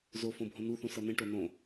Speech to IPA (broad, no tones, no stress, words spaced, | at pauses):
zo fõbʱõnuθũ sʌnẽʈo nõ